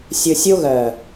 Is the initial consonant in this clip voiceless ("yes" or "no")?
yes